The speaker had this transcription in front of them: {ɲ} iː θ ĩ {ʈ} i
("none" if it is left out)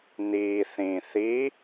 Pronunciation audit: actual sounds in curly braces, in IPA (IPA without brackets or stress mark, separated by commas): n, θ